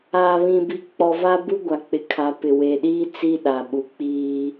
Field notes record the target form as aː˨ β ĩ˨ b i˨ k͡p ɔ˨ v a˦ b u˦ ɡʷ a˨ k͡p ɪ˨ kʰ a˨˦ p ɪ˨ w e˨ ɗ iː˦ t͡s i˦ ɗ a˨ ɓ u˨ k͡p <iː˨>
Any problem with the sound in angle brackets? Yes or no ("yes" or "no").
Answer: yes